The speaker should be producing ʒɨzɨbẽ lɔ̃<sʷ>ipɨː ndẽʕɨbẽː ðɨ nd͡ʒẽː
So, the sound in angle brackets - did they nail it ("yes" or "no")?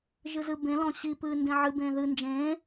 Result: no